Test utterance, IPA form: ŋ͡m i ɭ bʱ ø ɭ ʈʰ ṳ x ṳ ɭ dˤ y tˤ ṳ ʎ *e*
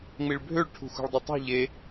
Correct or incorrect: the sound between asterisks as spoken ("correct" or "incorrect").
correct